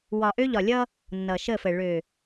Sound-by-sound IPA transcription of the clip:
wɒ˨ʔø˦ʎɒ˨lʲʌ˦ | nːʌː˨ʃə˦˨fə˨ ɭø˨

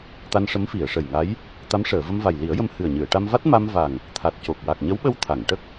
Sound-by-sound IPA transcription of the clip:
t̪a˧nʂə˧˥mfi˨˩˨ə̯ ʂə˨˩jŋa˧˥j | t̪a˧˥mʂəː˨˩˨ və˧mva˨˩jli˨˩˦ə̯jə˧m hɨ˨˩ə̯ɲɨ˨˩˨ə̯ʈa˧mva˦˥t̚ ma˧mva˨˩ŋ | t̪ʰa˨˩t̚co˨˩k̚ wa˨˩k̚ɲə˧˥wɓə˧w t̪ʰa˨˩˨ŋʈə˦˥k̚

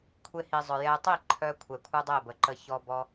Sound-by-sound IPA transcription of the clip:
kʷʰe˧hi˨zˤœ˨ jɛ˧tˤi˦˨ǃʰœ˧ kʷʰɛ˨kʷʰœ˦dˤe˦˨bə˨ ǃə˧çɔ˧bɔ˧

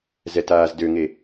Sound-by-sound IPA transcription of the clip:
zɛtaːzdøŋe

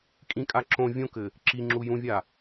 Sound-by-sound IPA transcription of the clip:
kʼĩkʼa ǁõ vʲõkɘ | ǁiŋ͡ǁu jũvʲa

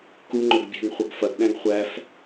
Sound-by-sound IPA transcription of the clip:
kuŋ͡ǃɵɡ bʲɛ̤ŋχʷɐɡ fɐɡɗæ̃ɡ χʷæf

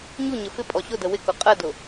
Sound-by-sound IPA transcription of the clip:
ɲuɲə fɪpʼɔ ɕʊdə wɪkʊ qʼədʊ

